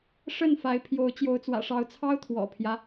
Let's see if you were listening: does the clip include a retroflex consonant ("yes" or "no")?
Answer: yes